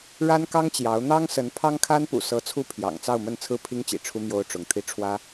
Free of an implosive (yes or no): yes